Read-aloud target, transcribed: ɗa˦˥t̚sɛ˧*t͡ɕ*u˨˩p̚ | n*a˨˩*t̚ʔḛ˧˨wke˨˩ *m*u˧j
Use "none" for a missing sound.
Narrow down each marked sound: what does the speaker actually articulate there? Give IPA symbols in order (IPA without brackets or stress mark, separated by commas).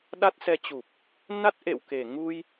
t͡ɕ, a˦˥, ŋ